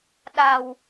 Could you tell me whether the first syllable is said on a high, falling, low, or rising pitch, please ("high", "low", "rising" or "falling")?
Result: low